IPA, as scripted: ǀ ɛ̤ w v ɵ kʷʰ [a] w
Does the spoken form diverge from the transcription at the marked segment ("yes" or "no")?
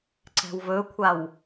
no